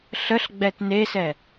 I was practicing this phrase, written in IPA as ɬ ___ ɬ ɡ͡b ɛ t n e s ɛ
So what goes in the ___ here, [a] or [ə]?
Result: ə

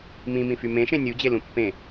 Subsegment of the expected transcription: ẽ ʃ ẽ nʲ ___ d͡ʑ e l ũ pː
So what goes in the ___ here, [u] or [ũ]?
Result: u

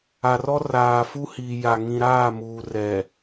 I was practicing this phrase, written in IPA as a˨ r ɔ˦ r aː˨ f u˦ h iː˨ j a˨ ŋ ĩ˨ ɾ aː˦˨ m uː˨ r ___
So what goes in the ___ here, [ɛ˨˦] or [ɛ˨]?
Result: ɛ˨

